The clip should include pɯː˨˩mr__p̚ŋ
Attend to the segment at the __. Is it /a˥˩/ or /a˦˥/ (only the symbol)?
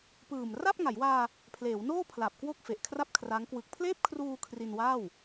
a˥˩